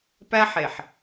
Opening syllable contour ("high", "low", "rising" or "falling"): high